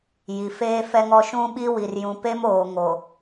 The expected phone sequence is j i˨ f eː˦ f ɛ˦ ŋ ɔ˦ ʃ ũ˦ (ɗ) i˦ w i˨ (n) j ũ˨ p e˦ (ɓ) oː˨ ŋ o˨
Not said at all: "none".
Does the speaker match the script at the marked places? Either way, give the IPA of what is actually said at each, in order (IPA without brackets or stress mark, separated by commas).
ɓ, r, m